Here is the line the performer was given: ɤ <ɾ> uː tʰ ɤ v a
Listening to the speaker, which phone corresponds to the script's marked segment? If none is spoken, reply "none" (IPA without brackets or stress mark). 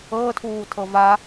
tʰ